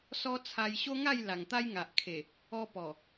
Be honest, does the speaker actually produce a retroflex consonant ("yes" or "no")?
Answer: no